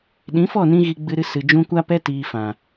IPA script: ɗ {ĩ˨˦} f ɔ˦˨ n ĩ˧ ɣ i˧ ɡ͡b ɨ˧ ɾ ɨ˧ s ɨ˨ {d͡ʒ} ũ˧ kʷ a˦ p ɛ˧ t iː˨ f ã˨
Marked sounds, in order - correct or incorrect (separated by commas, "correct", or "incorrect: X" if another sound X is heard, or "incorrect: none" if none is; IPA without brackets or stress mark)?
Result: correct, correct